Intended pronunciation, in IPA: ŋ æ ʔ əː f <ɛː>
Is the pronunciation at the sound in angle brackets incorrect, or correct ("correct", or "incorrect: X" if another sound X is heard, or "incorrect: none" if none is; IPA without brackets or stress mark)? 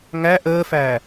incorrect: æː